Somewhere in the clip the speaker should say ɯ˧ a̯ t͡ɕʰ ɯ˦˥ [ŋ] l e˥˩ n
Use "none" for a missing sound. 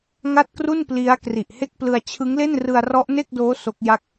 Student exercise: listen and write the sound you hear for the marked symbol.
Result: ŋ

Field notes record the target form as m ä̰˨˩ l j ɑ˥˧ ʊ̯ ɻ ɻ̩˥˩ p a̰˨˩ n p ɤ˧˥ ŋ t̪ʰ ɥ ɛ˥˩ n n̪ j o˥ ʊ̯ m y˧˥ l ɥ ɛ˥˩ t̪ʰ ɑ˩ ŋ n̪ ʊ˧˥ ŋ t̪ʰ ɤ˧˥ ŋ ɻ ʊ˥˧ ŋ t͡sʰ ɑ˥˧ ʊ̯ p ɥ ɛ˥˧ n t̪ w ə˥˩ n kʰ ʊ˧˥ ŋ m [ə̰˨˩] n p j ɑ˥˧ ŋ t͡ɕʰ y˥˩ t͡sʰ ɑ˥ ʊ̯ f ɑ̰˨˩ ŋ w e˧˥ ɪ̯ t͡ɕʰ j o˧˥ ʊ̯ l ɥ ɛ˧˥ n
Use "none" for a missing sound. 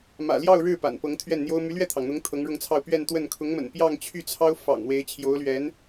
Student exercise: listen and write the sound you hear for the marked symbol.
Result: ə̰˨˩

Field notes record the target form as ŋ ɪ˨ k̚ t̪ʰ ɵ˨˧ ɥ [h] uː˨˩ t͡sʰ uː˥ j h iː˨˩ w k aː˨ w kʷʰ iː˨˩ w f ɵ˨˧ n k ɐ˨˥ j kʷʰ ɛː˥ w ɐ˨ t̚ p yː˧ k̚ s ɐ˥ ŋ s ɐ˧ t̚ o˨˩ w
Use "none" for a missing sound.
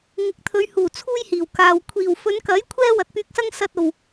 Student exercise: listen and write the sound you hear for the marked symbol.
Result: h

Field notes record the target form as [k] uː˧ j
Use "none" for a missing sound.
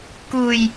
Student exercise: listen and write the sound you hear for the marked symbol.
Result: k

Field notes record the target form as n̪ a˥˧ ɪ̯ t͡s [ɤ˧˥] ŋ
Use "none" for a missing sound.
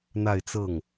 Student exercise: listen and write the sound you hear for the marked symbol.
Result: ɤ˥˩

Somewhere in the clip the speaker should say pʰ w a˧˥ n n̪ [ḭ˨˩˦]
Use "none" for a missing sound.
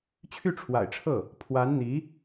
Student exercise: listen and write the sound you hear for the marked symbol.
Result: i˧˥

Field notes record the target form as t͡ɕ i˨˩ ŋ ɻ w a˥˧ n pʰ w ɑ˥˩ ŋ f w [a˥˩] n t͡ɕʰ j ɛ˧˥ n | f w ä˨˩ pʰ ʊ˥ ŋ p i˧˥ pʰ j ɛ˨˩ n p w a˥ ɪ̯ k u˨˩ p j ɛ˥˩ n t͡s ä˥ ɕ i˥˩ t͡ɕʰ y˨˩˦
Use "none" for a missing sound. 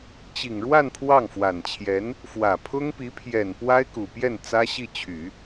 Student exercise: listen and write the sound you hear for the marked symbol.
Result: a˨˩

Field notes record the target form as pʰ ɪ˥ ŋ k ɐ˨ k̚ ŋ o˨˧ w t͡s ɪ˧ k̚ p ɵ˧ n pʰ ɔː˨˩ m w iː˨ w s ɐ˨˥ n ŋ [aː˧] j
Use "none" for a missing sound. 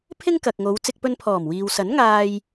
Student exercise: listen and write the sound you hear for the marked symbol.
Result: aː˧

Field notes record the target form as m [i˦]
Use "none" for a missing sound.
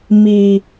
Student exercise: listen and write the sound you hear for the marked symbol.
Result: i˨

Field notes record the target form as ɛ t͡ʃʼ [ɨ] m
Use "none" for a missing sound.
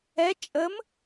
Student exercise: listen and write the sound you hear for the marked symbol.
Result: ə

